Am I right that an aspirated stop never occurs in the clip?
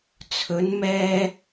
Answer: no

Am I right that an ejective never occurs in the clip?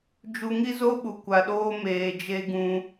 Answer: yes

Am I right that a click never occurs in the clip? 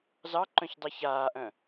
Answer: no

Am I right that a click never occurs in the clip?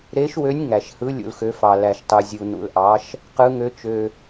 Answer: yes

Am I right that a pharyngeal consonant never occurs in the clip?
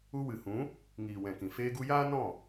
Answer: yes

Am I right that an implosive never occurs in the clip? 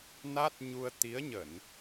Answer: yes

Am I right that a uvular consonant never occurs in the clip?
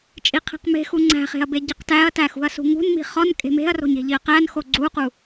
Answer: no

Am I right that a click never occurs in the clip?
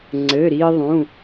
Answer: no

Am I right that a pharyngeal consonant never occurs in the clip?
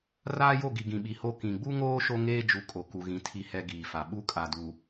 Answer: yes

